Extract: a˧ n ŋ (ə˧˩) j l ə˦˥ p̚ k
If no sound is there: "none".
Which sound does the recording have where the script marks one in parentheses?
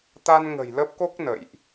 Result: ə̤˨˩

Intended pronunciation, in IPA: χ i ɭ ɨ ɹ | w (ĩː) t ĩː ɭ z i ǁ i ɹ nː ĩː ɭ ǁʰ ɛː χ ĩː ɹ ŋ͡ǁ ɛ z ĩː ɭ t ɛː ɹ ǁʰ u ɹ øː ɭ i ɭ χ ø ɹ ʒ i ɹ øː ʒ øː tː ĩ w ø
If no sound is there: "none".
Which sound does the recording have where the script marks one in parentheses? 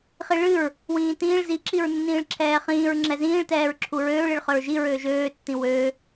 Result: ĩː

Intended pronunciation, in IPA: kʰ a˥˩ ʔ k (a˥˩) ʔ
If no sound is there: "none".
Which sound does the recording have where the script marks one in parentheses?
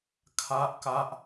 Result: a˥˩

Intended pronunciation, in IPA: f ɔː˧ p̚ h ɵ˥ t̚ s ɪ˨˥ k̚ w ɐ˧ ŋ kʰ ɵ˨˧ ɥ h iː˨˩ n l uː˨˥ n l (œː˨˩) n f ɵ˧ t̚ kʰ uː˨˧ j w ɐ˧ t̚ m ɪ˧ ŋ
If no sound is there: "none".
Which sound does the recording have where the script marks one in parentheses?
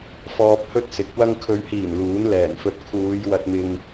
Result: ɛː˨˩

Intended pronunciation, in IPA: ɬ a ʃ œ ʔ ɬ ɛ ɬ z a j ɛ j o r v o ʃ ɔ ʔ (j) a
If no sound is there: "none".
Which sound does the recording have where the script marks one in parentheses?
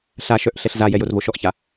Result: ç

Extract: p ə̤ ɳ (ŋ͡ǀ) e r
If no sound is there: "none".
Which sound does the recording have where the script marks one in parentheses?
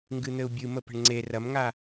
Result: ŋ͡ǀ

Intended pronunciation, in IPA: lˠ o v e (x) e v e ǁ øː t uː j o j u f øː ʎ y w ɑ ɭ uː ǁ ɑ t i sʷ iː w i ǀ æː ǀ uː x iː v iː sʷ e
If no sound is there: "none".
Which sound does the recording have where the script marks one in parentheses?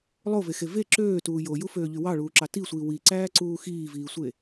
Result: x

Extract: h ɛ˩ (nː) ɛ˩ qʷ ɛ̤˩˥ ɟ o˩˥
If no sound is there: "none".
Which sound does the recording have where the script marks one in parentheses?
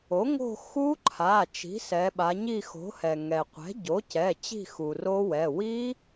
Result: ŋ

